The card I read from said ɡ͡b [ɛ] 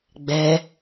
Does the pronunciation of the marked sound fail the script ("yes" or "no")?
no